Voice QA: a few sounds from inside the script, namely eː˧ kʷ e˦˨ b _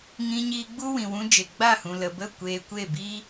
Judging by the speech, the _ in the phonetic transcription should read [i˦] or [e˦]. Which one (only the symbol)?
i˦